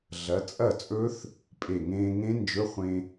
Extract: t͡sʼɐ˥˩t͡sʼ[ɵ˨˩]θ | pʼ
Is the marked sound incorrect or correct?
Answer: incorrect